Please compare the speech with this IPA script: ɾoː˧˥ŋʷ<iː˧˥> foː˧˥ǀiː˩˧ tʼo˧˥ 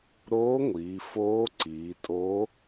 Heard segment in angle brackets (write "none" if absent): iː˩˧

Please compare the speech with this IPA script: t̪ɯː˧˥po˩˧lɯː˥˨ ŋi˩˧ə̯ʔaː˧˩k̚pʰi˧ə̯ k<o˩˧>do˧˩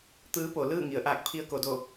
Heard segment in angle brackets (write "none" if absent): o˩˧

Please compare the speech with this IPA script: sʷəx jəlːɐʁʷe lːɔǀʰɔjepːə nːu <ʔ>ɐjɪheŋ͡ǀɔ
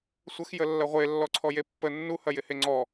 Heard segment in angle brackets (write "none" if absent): h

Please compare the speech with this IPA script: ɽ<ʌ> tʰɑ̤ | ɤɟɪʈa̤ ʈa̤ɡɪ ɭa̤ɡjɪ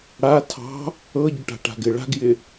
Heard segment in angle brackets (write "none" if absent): a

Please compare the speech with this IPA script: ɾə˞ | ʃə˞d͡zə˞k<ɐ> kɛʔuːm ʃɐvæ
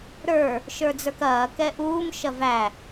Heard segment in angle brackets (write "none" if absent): ɐː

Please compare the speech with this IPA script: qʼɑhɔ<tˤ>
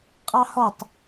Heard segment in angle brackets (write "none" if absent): tˤ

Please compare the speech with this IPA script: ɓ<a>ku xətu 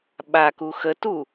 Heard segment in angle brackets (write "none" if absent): a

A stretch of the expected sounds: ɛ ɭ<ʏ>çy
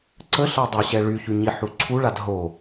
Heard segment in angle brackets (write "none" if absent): y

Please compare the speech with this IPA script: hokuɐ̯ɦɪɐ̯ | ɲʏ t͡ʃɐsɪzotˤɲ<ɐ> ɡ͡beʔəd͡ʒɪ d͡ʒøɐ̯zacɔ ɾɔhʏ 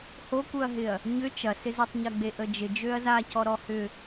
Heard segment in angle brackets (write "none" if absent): ɐ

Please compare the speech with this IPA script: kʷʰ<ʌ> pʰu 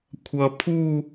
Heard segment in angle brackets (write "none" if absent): ʌ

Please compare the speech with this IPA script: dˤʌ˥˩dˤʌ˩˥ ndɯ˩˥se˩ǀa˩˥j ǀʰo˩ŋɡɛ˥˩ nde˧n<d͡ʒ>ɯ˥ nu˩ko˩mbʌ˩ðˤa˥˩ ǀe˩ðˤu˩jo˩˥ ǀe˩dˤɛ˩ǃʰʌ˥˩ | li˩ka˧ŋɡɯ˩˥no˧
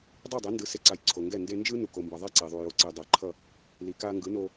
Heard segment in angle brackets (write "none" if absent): d͡ʒ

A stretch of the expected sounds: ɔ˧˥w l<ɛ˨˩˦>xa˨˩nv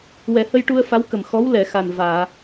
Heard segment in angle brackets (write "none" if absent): ɛ˨˩˨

